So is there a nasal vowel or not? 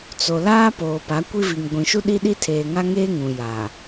yes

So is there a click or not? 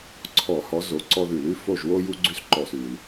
yes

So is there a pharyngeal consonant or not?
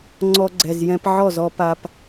yes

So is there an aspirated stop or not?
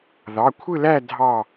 yes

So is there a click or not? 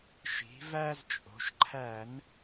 yes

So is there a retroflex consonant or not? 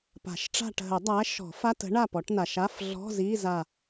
yes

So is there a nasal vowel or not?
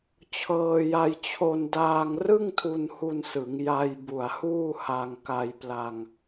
no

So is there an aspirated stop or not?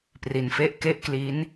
no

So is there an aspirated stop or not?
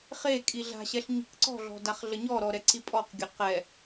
no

